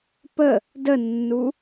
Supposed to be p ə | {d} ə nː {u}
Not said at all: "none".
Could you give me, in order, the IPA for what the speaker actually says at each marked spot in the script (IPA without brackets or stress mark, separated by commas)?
d, u